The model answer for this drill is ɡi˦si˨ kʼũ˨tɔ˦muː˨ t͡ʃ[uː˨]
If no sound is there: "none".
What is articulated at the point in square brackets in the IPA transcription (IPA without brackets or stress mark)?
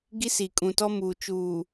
uː˨